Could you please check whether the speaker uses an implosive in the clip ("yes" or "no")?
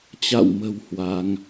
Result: no